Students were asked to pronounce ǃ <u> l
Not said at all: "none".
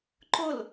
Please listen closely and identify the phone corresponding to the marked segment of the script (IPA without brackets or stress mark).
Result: ʊ